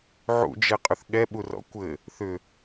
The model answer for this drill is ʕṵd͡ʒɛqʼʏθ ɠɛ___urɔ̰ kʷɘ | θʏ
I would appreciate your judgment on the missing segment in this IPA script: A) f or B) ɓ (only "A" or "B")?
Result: B